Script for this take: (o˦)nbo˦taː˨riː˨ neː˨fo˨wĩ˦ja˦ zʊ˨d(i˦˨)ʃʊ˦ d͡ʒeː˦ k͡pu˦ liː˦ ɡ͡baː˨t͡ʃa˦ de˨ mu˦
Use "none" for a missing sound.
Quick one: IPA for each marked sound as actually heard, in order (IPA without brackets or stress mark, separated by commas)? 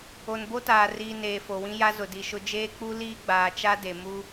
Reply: o˨, i˨